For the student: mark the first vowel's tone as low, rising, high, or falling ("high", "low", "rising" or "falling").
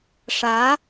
rising